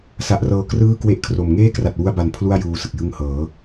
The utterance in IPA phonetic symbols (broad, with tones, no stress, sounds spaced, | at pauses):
s a˨˩ ʔ r ɤː˨˩ k r ɯː˥˩ k w e˥˩ ʔ kʰ r o˨˩ m ŋ eː˥˩ k r a˨˩ t̚ w u˧ a̯ b a˨˩ n pʰ l u˥˩ a̯ j uː˧ s ɯ˨˩ k̚ j ɯ˧ ŋ h ɤː˩˦